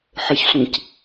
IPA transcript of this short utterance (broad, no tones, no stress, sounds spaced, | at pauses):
ħ ə ç sʷ ĩ c